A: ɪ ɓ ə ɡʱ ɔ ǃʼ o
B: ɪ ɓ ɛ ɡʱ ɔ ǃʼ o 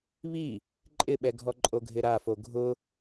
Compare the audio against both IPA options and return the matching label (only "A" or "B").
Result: B